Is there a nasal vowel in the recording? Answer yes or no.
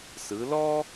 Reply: no